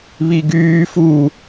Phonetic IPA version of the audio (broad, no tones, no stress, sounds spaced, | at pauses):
β i ɡ yː f u